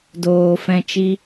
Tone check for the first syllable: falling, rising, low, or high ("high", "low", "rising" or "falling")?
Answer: low